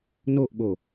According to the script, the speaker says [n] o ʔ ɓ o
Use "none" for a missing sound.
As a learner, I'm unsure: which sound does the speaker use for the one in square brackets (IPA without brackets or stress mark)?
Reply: n